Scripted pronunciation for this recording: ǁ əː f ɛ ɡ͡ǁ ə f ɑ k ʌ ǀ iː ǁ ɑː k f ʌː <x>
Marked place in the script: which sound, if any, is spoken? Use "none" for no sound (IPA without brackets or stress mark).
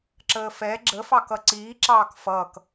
k